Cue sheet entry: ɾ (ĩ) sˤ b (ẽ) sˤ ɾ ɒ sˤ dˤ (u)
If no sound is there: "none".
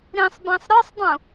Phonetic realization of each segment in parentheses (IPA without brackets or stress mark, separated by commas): ĩ, ẽ, ũ